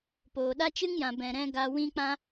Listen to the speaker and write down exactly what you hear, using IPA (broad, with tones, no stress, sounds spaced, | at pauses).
p oː˨ ɗ a˦ t͡ʃ ɨ˦ ŋ j ã˨ b ɛ̃˨ ɾ ɛ̃˧ ɡ a˧ w ĩ˦ k͡p ã˦